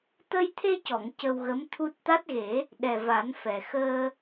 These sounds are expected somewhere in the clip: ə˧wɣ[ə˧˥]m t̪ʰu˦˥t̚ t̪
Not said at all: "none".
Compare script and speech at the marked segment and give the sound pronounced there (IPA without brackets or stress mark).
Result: ə˧˥